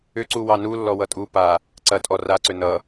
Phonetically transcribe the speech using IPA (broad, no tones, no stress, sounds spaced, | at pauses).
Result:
ʏ ǀ u w ɑ n u lː ɔ w ʌ tʼ u p a | ǀ ɐ tʼ ɔ r a ǀ ʏ n ʌ